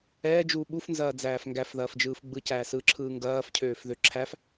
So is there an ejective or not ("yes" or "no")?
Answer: no